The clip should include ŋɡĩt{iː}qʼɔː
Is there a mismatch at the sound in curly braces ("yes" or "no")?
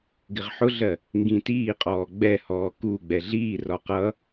no